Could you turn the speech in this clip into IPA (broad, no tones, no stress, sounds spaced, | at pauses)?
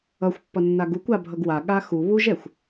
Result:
ʌ xʷ pː ʌ nː a ɡ u kʷ a bʱ ʌ ɡ w a ɠ a x u β u ʒ ɛ xʷ